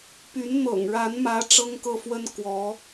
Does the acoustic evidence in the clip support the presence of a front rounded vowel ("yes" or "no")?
yes